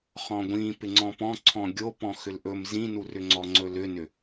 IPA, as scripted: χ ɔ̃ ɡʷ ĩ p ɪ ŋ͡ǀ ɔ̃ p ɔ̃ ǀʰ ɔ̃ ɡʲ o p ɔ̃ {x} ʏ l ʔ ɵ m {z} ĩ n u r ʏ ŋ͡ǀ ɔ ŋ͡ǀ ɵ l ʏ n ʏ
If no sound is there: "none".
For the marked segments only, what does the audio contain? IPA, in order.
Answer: x, z

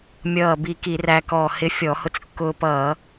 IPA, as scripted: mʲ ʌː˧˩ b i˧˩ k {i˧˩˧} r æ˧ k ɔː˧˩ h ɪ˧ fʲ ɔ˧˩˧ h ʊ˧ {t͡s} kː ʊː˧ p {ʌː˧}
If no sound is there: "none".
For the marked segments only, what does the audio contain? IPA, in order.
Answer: i˧˩˧, t͡s, ʌː˧˩˧

